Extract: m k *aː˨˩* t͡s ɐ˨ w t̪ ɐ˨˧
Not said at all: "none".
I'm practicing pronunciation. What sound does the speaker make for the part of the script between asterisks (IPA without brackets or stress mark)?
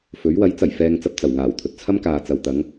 aː˨